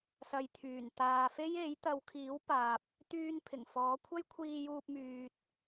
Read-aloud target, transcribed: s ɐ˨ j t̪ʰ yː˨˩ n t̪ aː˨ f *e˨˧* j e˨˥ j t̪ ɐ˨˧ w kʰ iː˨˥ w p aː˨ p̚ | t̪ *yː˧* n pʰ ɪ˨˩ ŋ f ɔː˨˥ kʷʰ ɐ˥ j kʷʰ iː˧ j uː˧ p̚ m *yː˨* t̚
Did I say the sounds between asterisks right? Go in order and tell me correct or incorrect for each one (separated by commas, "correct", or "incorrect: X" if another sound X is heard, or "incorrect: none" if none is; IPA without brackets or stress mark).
incorrect: e˥, correct, correct